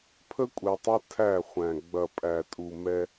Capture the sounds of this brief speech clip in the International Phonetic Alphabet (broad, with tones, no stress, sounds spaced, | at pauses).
pʰ ə˦ kʷʼ ɛ˨ tˤ ɐ˦ tʰ æ˦˨ χʷ æ̃˨ ɡ͡b ɐ˨ pʼ æ˨ tʼ u˨ m ɛ˦